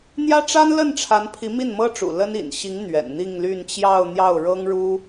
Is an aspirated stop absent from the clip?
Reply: no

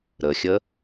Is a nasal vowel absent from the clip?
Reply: yes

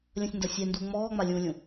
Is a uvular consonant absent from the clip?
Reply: yes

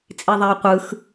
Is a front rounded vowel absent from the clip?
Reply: yes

